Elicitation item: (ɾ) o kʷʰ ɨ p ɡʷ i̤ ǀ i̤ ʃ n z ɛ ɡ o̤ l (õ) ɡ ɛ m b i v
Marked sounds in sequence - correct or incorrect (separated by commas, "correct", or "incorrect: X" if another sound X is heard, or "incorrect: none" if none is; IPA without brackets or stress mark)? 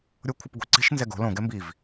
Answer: incorrect: ɾʲ, correct